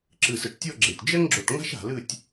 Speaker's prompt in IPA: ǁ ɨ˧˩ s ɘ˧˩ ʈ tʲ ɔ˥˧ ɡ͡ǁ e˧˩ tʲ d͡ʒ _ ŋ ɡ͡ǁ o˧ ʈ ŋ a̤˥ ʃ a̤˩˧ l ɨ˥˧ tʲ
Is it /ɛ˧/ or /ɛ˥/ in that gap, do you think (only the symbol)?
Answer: ɛ˥